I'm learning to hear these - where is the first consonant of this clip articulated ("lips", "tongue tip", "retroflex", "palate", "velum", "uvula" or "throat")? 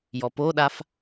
palate